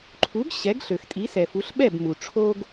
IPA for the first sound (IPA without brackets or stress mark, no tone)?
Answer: ǃʰ